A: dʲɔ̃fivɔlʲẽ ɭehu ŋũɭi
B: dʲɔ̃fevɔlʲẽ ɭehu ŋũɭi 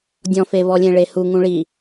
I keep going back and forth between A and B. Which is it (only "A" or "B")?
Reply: B